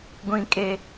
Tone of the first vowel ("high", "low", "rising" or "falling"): high